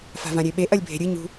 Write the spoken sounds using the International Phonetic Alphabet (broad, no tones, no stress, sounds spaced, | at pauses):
f a̤ v ã ɾʲ e ɓ e ʔ ɐ lʲ bʱ e̤ ɾʲ ɨ ɲ ṳ